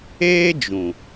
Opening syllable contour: high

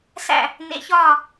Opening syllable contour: falling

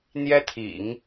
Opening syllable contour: high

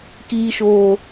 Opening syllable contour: high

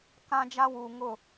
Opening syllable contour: high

